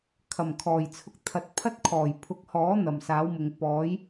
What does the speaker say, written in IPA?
kʰɐ˨˩mkʰɔː˨˩jt͡sʰʊ˧k̚ t̪ʰɐ˨˥t̚pʰɐ˥t̚kʰɔː˨˩j pʰʊ˨˥k̚hɔː˨˥ n̪ɐ˨˩msaː˨˥wmʊ˨ŋ pɔː˨˥j

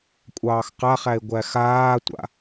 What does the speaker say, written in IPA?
kʷʼɑːxqaχæe̯ ɡʷæxaːtʷa̰

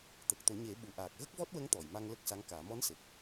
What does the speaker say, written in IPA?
t̪ə˨˩k̚ t̪o˨˩˦ɲe˨˩˦ɓu˨˩ ʔaː˨˩k̚ɣə˦˥k̚vɔ˦˥t̚wə˧˥ŋ t̪ɔ˨˩˨jma˧ŋ lə˦˥k̚sa˧˥ŋkaː˨˩˦ mɔ˧˥nse˨˩k̚

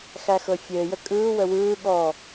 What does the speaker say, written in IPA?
xæxɤfʲɘːjə kʼɯːwə wɯː ɠɔ

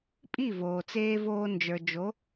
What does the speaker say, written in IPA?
pʼi˥˩ voː˩t͡seː˥ voː˧nd͡ʒə˞˩d͡ʒo˩˥

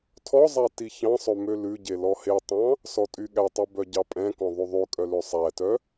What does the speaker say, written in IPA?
tʰɔzˤæ tiçɑ̃sˤø mølʉɟe lɔhetˤɑ̃ | sɔtʼyɠætˤʉ bœɟɑpʼɛ̃kɔ̃ ðˤʉðˤʉkʼœ løsˤætœ

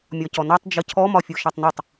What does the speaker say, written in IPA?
mʲɒcɔnɒtˤ d͡ʒəcʰɔ mɒfʲoʃɒtˤnɯtˤ

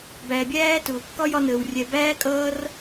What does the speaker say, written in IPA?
bæ˨bʲæː˦ tʊː˨kːɒ˦jɒ˧nəː˨w rʲɛ˨ bæː˦kʼʌː˦r

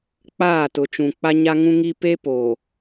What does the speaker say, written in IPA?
k͡paː˦˨ tʊ˨t͡ʃũ˨ k͡pa˦ɲa˦ŋũ˦ŋi˦ pe˦ poː˨

